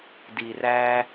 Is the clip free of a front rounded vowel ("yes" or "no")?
yes